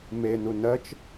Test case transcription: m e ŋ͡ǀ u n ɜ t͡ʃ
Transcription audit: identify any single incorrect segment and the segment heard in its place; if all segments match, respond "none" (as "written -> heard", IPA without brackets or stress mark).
ŋ͡ǀ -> n